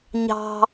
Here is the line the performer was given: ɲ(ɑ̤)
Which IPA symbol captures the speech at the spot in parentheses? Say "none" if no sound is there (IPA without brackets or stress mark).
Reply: ɑ̤